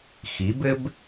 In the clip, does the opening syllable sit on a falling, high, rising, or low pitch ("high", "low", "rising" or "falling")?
rising